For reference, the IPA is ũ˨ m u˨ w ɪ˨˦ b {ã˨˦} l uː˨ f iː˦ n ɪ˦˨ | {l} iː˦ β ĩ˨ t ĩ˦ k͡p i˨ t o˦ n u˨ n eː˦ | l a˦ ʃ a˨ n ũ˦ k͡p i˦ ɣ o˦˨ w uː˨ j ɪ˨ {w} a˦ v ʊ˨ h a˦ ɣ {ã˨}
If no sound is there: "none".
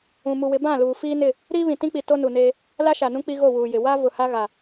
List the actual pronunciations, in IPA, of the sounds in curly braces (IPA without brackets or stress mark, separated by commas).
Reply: ã˦˨, ɾ, w, a˨